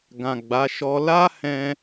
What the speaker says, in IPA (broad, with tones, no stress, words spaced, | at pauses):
ɡã˨ ɡ͡ba˨˦ ʃɔ˧ la˦ hɛ̃˧